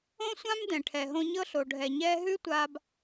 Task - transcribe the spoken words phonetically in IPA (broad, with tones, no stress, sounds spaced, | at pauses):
õ˦ sʷ ã˦ m d ɛ̃˨ ʈʰ ɛ˨ ɦ õ˦ ɲ ɤ˦ ɬ o˨ ɖʱ ɛ˨ ɲ ɛː˦ ɦ ʉ˦ tʷ a˨ b